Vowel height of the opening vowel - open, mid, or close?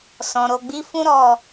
mid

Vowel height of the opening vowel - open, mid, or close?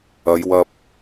open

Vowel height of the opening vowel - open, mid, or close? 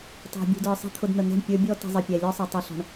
open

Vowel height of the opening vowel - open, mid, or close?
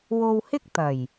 mid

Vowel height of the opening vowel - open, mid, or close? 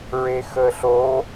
mid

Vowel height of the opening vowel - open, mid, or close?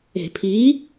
mid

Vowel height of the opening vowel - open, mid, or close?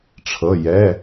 mid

